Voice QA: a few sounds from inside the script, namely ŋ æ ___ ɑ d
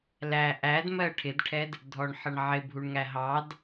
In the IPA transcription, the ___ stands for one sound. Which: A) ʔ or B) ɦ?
B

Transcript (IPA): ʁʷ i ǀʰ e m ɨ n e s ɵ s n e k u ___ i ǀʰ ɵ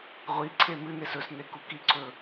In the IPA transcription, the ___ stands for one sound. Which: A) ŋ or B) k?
B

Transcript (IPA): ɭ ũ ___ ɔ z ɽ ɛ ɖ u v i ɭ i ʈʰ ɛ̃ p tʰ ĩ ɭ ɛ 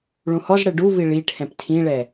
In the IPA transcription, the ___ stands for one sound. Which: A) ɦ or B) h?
B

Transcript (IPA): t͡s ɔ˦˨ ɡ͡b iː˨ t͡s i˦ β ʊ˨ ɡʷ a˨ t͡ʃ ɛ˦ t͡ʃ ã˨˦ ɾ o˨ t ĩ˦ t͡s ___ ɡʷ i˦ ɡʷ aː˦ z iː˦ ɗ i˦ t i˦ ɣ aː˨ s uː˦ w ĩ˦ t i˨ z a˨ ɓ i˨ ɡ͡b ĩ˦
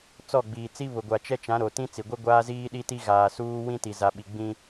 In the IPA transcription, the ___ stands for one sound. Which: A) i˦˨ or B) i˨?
B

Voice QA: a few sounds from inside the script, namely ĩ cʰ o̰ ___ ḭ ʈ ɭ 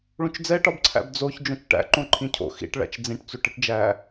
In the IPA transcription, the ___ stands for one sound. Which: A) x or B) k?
A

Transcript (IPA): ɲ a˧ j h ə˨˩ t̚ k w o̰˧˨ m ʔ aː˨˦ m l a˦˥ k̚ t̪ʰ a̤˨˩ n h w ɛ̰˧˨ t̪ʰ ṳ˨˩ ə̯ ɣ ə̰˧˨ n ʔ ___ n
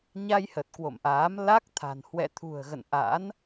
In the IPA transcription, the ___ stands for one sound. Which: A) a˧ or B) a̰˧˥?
B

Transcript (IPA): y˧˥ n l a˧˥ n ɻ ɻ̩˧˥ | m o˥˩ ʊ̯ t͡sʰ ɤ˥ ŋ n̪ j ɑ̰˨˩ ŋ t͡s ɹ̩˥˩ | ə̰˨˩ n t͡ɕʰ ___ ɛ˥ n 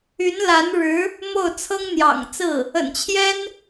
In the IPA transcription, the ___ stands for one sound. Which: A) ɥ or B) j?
B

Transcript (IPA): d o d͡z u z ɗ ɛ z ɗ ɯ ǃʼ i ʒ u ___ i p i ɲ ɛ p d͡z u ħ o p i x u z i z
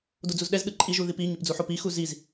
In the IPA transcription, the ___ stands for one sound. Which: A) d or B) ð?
B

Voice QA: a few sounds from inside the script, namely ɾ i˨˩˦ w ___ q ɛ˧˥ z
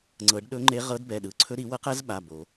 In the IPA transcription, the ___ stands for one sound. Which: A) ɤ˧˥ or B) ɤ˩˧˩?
A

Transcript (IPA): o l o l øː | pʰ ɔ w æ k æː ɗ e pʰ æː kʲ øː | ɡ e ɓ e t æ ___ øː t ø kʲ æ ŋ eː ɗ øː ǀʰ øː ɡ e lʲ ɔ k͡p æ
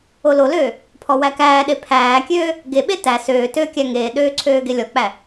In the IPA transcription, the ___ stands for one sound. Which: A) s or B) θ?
A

